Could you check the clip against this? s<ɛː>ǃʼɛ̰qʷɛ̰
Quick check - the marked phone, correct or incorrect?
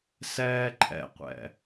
correct